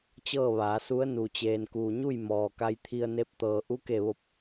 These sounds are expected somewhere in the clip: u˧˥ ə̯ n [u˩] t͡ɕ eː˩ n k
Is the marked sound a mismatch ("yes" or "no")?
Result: no